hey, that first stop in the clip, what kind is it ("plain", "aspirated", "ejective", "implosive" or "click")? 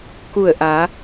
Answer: plain